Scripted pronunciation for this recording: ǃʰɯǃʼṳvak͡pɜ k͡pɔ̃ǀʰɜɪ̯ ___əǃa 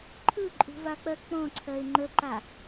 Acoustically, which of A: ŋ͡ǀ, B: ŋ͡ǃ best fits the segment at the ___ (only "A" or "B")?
B